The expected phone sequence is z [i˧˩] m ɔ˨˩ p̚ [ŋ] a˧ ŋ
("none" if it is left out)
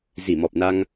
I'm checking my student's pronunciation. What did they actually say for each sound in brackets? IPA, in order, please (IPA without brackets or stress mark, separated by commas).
i˧˩, n